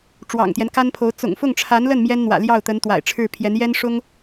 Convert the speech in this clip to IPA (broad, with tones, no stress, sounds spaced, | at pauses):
ʈ͡ʂ w ɑ̰˨˩ ŋ t̪ j ɛ˦ n k a˥ n pʰ o˧˥ ʊ̯ t͡s ʊ̰˨˩ ŋ f ʊ˥˩ ŋ ʈ͡ʂʰ a˧˥ n l ə˥˩ n m j ɛ˥ n n̪ w ä̰˨˩ l j ɑ˥˩ ʊ̯ t̪ ə˧˥ n t̪ w a̰˨˩ ɪ̯ ʈ͡ʂʰ ɻ̩˥˩ pʰ j ɛ˧˥ n j ɛ˥ n ʂ ʊ˥ ŋ